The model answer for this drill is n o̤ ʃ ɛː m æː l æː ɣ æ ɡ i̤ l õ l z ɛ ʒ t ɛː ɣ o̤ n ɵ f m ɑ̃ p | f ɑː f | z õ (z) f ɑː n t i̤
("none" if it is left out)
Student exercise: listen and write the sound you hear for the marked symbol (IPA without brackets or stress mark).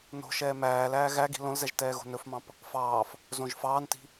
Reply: ʒ